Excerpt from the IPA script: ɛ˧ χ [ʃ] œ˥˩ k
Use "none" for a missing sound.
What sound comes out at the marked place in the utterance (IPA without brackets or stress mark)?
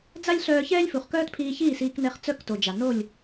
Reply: t͡s